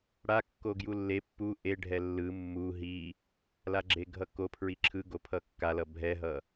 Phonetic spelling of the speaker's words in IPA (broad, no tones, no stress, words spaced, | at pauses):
ɽa kːoɡjulːe pːu ʔeɖʱɛ lːɯ mːu ɦi | laɡ͡ǁeɡʱʌko pʰɹiǁʰɯ ɡopʰʌkːalʌ bʱɛɦʌ